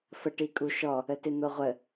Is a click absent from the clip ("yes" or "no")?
yes